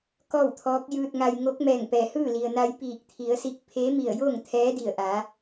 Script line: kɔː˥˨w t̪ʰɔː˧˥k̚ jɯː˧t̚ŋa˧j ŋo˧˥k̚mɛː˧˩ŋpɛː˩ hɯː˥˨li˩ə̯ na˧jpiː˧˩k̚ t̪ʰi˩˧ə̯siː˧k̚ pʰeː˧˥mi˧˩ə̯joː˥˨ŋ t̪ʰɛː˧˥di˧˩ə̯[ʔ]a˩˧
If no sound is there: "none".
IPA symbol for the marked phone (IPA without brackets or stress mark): ʔ